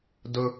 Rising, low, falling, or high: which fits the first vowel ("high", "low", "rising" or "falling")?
high